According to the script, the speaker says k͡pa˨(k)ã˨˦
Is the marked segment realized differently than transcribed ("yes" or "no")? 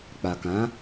no